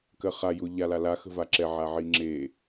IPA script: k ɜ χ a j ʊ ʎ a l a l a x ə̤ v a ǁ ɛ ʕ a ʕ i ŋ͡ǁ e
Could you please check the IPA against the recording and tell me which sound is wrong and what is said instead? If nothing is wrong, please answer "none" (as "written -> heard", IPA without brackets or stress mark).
none